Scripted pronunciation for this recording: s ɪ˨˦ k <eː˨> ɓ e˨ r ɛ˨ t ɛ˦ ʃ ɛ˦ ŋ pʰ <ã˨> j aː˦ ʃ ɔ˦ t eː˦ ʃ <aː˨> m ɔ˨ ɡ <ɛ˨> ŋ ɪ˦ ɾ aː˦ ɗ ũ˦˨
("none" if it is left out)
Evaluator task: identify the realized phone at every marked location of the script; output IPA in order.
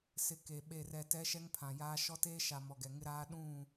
e˨, ã˨, a˨, ɛ˨

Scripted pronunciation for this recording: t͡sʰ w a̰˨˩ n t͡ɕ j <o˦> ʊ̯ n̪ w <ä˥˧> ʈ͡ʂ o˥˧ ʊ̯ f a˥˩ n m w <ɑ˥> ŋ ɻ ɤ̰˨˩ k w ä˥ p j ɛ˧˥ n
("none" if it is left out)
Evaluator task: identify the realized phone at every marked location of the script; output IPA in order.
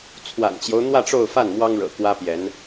o˦, ä˥˧, ɑ˥

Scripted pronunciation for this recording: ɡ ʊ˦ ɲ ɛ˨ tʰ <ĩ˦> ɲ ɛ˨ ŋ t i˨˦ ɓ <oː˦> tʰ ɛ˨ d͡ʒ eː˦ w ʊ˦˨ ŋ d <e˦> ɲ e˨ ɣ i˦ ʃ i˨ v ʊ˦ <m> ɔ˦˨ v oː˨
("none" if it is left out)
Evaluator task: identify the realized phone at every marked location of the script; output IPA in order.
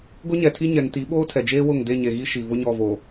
i˦, oː˦, e˦˨, ɲ

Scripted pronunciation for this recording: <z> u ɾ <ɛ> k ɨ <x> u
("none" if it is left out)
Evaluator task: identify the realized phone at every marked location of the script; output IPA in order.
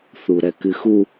θ, ɛ, x

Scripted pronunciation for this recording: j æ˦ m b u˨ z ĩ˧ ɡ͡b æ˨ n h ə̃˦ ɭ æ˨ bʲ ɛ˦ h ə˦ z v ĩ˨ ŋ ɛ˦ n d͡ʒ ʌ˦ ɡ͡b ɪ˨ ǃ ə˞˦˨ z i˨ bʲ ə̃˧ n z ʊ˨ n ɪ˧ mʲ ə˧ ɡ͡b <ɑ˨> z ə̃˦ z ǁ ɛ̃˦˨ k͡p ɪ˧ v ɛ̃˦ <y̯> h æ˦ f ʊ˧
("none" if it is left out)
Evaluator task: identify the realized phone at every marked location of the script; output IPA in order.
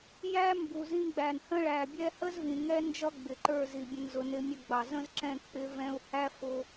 ɑ˨, u̯

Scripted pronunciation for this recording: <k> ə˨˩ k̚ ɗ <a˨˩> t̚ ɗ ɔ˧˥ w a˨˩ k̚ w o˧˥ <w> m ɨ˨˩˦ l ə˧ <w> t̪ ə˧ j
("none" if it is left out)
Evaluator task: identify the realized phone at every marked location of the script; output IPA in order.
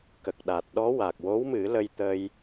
k, a˨˩, w, j

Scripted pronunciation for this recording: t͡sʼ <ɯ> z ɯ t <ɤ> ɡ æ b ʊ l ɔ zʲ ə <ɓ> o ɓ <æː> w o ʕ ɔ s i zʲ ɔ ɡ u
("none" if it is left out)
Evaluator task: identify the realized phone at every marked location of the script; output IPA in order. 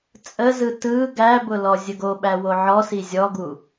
ə, ɯ, ɡ, æ

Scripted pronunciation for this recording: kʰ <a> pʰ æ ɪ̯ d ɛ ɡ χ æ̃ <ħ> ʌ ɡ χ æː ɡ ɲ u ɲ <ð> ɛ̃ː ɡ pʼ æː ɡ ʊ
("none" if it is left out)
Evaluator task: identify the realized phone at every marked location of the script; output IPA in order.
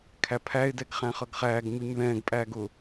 æ, χ, ð

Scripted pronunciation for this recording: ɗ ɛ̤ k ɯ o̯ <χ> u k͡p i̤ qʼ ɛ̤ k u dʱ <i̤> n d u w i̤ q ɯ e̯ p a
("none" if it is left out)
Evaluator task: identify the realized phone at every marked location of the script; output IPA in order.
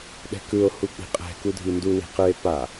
h, i

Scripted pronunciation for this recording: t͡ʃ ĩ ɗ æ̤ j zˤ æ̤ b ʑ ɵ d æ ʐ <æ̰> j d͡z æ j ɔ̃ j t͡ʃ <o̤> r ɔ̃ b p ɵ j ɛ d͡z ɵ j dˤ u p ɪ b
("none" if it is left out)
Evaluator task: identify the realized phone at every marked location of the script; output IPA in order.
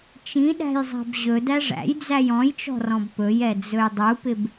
æ̰, ɔ̤

